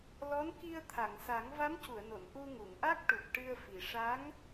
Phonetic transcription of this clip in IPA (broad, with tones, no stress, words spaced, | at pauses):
lɔ˧˥nki˧ə̯ t̪ʰa˨˩˨ŋsa˨˩˦ŋ va˧˥mcu˨˩˨ə̯no˨˩˨n ʔu˧ŋu˨˩˨ŋʔa˦˥k̚ʈu˨˩p̚ ʈɨ˧ə̯fi˨˩ ʂa˧˥ŋ